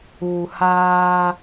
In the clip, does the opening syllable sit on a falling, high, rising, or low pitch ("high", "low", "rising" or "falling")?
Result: low